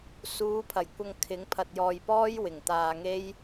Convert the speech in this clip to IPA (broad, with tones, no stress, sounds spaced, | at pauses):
s uː˨˧ pʰ ɐ˨˩ j kʷ ɐ˧ ŋ kʰ ɪ˨˥ ŋ pʰ ɐ˧ t̚ j ɔː˧ j p ɔː˥ j w ɪ˨˩ ŋ t̪ aː˧ ŋ e˥ j